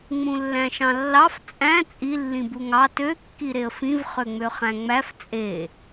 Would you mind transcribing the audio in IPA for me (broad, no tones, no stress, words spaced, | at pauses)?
ŋ͡mũlːæ̃ʃɑ̃lːɑf t͡sʼæ̃ t͡sʼi lːĩbuŋɑ tø kːiɾeə̯fĩv χøŋ͡møχæ̃ŋ͡mæf t͡sʼe